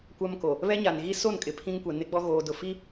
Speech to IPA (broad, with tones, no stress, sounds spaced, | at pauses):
kʷ a˦ m k o˨ | β ɛ˦ ɲ a˨ n ɣ i˦ s o˦˨ n kʼ ɪ˨ pʰ ĩ˦ ŋ kʷ ɛ˨ n ɪ˦ ɡ͡b ɔ˦ ɣ oː˨ d ʊ˨ f i˦